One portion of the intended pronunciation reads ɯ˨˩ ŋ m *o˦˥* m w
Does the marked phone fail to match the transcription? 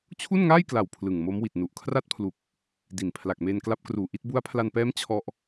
no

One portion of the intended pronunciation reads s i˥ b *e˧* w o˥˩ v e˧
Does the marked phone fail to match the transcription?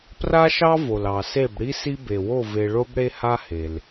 yes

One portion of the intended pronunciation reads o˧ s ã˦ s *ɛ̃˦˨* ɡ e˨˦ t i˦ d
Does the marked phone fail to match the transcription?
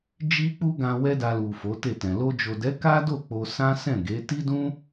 no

